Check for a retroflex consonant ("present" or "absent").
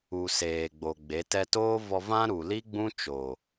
absent